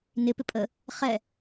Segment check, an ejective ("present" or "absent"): present